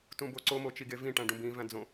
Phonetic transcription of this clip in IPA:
t ũ b o ǀ o m o t͡ʃ i ɡ e v ĩ ʈ æ̃ ɖ ũ b ĩ v æ̃ d͡z õ

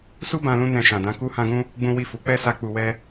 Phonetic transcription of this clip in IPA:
s u˦ b ã˧ l ũ˧ n ɛ̃˧ ʃ ã˨ d ã˨˦ k u˦ h ã˦ ɡ ũ˦ | ɡ͡b ũ˦ w i˦˨ f u˨˦ k͡p ɛ˦ s a˧ k͡p u˧ w ɛ˦

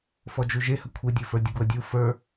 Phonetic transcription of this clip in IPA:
f ɔ d͡ʒ u ʒ e h ə kʷʰ e dʲ ə˞ f ə˞ dʲ ə ɡ w ə dʲ u f ə˞

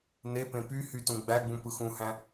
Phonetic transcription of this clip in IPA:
n e p ẽ p y h y t ũ ɡ͡b æ ɡ͡b ũ p ɯ x ũ h æ̃

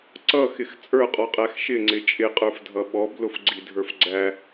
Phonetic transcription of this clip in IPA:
ǀ ʌ x ɪ x t͡sʼ ə˞ qʼ ɔ qʼ æ x ʃ ɪ ŋ͡ǀ ɪ t͡ʃʼ ɪ qʼ ə˞ f dʱ ʌ ɓ ɔ b l ʊ f ɡ͡ǀ i dʱ ə˞ f ɡ͡ǀ æ

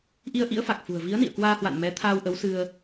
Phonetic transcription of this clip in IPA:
ʔ i˧ ə̯ ʔ ḭ˧˥ ə̯ f a˨˩ k̚ f ṳ˨˩ ə̯ v i˨˦ ə̯ n ḭ˧˨ ə̯ k w aː˧ h w a̰˧˨ n m ɛ˨˦ t̪ʰ aː˧ w ʔ ə˨˦ w s ɨ˧ ə̯

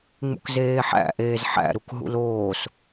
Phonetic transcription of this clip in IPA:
ŋ͡m ṵ k z eː ħ æ̰ ʔ eː z ħ æ̰ ɾ u k ɦ ṵ l oː s

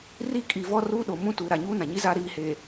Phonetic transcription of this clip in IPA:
r i˦ kʼ i˨ v ɔ˦ r uː˦ ɗ o˨ m ũ˦ t uː˨ ɾ a˨ ɲ uː˦ n ã˨ ɲ i˦ z a˦ ɾ iː˨ h eː˨

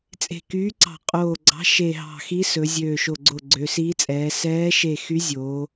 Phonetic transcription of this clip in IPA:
t͡sʼ e̤˧˩ k yː˧˥ ǀ ɑ̤˧˩ qʼ oː˧˩ ɡ͡ǀ ɑ̤˧˥ ʃ e˧˩ ɦ ɑ̤˧˩ x i˧˥ s ɵ˩˧ zʲ øː˧˩ ʃ o˧˩ ɡ͡ǀ o˧˩ ɡ͡ǀ ø˩˧ s iː˧˥ t͡sʼ ɛː˩˧ s ɛː˧˥ ʃ e˧˩ x y˧˥ zʲ oː˩˧

